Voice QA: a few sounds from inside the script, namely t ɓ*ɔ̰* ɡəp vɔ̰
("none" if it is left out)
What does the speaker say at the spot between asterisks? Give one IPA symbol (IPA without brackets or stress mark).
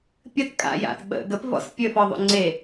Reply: ə̰